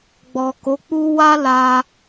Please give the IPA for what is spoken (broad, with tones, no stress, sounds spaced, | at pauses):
ɡ͡b ɔ˨ k o˨˦ k͡p u˦ w a˦ l a˧